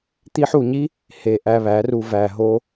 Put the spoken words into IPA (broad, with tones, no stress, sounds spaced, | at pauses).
t̪ i˧ ħ u˨ ɲ i˦ | h e˨ ʔ æ˧ β æ˨˦ r u˧ v æ˨ ɦ o˧